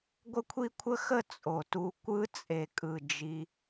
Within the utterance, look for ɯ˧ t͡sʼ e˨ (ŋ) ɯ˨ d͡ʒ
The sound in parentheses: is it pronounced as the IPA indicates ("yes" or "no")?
no